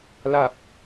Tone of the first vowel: low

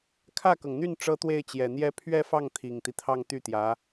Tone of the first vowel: falling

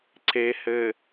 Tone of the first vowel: low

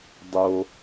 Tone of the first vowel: high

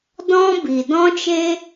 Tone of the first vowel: high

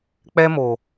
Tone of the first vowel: high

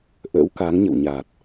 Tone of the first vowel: rising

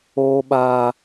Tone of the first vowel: high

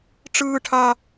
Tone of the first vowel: high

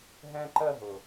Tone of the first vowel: high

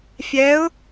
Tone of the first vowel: rising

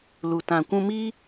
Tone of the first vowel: low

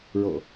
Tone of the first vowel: low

